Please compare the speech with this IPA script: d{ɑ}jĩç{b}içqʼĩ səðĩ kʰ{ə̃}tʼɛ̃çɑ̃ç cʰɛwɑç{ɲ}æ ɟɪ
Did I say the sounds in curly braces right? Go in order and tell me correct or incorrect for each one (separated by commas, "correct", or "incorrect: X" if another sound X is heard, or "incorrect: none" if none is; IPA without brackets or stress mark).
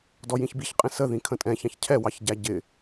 incorrect: ɔ, correct, correct, incorrect: ɟ